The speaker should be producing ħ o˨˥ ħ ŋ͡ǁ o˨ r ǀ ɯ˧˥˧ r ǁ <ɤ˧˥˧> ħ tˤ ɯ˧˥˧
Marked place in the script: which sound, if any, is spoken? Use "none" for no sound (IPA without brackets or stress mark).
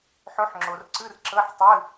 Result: ɤ˧˥˧